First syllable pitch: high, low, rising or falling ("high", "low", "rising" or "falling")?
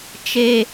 low